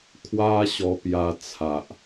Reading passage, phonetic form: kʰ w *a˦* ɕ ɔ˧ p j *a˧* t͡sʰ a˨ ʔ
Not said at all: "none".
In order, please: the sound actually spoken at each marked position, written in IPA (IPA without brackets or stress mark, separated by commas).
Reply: a˦, a˧